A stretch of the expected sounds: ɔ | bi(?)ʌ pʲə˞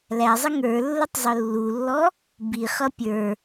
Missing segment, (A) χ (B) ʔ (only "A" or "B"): A